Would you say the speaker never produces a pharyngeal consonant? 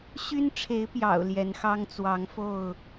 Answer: yes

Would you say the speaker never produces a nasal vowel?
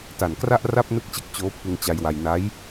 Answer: yes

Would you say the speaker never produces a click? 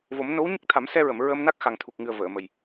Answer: yes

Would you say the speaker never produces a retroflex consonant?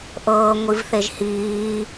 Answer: yes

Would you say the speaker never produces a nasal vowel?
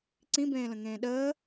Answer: no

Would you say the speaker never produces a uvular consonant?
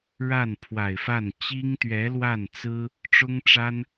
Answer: yes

